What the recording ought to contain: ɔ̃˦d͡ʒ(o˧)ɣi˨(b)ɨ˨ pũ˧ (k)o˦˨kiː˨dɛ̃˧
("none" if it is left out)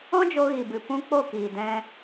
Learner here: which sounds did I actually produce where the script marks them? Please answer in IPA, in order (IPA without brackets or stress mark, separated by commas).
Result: o˧, b, k͡p